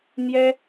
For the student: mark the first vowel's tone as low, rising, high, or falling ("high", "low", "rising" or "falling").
high